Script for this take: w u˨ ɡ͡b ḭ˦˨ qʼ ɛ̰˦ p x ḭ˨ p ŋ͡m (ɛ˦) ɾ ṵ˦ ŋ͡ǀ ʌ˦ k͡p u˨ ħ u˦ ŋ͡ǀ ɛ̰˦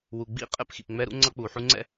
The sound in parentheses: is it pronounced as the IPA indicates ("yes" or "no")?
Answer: yes